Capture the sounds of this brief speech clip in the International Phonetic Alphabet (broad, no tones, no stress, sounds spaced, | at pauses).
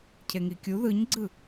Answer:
cʰ e ŋ i kʲ u ð ɯ ɲ ɡ͡ǀ ɯ